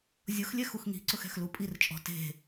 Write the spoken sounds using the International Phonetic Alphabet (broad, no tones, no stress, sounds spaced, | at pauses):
zʲ ʊ x lʲ ɛ x u x ŋ i̤ ǀ ʊ x ɛ̤ x l u pʼ i r t͡ʃʼ ɔ̤ t e̤